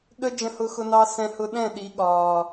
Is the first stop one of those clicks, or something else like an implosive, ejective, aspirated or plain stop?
implosive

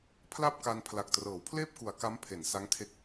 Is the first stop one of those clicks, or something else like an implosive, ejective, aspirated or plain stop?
aspirated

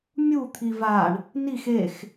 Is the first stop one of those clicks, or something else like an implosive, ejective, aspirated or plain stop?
aspirated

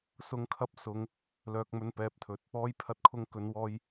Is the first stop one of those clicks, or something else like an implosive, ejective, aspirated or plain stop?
aspirated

